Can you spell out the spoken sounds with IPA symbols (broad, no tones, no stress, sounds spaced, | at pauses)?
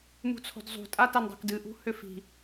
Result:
m ṳ t͡sʰ o̤ d zˤ ṳ tʼ a t a n dˤ o̤ k d ɨ ʔ ṳ h ʏ f i̤